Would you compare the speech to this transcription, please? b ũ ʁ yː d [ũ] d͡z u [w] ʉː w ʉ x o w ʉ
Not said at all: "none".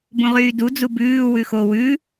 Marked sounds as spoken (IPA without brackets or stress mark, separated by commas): u, b